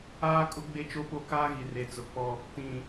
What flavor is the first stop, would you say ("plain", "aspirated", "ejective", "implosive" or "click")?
ejective